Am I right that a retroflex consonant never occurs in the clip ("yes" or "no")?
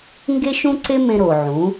yes